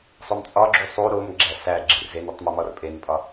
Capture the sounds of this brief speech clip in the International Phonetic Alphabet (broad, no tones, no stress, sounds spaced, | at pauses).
sˤ o m t͡sʼ ɒ ɡ͡ǁ u sˤ u ɾ o m ɡ͡ǁ æ s æ ɡ͡ǁ i r z e n i tˤ m u m ɒ r pʼ e n pʼ ɒ